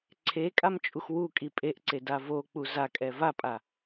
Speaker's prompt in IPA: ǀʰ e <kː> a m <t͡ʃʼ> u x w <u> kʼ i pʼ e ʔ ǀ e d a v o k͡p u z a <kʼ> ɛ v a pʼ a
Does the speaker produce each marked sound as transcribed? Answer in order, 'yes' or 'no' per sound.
no, yes, yes, yes

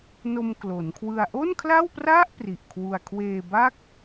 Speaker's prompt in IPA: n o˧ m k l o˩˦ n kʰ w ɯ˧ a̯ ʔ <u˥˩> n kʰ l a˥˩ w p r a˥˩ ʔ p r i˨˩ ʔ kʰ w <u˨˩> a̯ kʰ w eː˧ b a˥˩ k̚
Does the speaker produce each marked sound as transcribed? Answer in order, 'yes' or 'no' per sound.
no, no

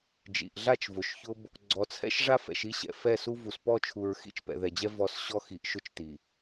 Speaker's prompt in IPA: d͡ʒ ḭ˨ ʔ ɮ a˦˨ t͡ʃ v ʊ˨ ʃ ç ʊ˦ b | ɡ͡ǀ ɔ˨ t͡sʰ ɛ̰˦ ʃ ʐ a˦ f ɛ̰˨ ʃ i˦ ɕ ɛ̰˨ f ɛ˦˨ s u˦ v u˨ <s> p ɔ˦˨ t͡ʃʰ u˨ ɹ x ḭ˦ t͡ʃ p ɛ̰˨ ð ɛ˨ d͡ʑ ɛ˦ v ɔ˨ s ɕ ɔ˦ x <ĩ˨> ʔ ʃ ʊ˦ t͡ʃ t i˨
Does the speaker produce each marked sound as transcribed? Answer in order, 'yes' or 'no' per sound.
yes, no

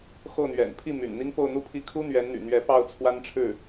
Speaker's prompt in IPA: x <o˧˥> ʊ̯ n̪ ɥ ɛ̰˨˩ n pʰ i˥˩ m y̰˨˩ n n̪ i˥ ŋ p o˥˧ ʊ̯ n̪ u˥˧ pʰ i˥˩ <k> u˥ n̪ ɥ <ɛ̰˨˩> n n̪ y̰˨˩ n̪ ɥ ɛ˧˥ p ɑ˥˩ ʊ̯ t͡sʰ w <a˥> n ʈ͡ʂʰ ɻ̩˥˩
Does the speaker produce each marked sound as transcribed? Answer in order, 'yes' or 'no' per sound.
no, no, no, yes

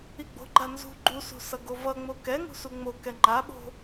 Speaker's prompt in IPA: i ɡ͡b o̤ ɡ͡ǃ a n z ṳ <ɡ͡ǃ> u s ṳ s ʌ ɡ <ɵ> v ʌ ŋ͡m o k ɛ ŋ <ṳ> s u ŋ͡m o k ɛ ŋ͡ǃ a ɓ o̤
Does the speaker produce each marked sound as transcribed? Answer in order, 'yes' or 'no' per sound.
yes, no, yes

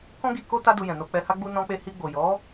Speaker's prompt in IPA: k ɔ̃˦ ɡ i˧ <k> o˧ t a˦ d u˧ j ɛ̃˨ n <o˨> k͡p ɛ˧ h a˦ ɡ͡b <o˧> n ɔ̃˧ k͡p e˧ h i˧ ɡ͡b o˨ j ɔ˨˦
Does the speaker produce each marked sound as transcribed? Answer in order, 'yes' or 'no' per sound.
yes, no, no

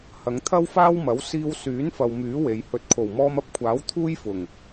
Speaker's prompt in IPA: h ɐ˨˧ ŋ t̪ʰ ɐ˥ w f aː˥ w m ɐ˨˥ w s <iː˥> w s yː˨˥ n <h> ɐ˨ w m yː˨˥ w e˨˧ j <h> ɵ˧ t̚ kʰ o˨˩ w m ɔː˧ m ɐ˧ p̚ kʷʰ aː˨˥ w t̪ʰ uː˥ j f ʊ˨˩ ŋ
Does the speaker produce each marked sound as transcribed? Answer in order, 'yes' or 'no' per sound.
no, no, yes

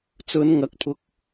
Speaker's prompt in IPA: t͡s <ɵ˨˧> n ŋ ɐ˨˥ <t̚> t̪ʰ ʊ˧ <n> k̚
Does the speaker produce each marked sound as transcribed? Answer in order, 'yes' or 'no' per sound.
yes, no, no

